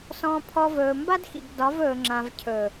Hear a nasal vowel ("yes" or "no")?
yes